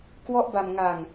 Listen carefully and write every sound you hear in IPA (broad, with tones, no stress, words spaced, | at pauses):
kwɔ˦˥ʔba˧mŋa˧ŋ